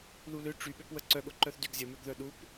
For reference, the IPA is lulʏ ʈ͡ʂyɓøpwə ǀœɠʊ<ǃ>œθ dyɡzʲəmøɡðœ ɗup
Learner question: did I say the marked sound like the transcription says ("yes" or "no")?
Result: yes